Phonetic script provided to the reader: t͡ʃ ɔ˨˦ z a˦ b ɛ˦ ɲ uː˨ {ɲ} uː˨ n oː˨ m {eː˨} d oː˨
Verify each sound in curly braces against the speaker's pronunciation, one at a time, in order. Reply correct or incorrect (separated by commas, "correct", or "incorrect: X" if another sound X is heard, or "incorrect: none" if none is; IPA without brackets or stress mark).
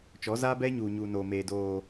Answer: correct, correct